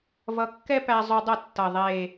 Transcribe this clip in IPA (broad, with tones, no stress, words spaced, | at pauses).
vʌ˧kːɛ˥pæ˧ zˤy˧dˤʌ˥˩tːʌ˨˩ ðˤe˨˩